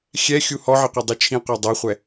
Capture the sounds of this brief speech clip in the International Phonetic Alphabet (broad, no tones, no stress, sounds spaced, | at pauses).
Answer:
xʲ ɛ xʲ u h ɔ ʕ ɪ qʷ e dˤ i t͡ʃʰ ĩ qʷ a dˤ a χʷ ɛ